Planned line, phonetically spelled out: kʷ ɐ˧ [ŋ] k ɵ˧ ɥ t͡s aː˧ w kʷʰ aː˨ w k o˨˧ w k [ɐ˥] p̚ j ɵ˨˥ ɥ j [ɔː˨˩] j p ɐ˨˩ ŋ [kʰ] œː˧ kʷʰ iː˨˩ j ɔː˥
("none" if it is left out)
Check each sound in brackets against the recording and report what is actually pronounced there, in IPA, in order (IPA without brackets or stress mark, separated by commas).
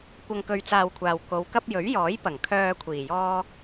ŋ, ɐ˥, ɔː˨˥, kʰ